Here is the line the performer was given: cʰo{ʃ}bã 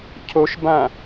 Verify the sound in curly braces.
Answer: correct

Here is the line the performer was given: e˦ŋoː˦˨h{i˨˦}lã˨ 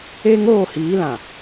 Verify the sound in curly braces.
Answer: incorrect: iː˨˦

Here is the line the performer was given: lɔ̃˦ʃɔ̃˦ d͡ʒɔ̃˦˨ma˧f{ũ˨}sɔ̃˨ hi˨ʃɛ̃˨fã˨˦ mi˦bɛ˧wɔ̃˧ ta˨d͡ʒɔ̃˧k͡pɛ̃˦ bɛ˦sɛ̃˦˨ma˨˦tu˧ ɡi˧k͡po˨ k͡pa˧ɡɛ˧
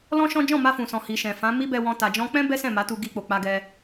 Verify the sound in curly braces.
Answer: correct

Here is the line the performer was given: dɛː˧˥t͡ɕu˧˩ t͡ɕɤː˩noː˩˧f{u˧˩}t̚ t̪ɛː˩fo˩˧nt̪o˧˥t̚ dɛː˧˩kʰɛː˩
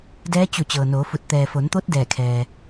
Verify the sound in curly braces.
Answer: correct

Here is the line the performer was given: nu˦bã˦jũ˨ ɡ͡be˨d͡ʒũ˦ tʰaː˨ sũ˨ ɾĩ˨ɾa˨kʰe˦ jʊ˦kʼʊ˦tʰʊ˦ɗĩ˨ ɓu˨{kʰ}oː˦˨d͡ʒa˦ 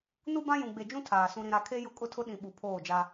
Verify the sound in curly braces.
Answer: incorrect: pʰ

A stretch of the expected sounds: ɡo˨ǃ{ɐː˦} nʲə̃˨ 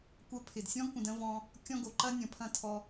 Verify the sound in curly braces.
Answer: incorrect: ɐ˦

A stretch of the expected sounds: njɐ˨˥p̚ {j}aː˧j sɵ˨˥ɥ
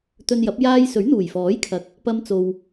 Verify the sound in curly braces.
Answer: correct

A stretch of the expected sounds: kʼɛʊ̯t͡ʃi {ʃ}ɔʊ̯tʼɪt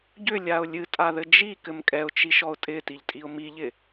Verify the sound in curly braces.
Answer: correct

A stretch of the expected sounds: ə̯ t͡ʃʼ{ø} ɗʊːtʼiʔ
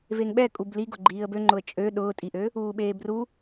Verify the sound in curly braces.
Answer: correct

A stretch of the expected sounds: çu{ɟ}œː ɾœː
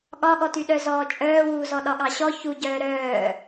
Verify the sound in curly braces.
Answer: correct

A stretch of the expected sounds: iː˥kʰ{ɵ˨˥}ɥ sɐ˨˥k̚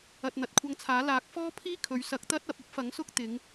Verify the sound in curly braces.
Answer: incorrect: ɵ˨˧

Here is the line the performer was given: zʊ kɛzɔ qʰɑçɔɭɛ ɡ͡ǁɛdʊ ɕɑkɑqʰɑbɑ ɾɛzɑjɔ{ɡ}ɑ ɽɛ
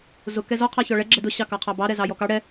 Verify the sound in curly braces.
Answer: incorrect: k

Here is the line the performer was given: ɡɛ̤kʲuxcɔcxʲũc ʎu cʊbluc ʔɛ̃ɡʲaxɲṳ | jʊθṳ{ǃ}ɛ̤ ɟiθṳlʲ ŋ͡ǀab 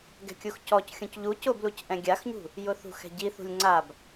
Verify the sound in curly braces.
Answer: incorrect: x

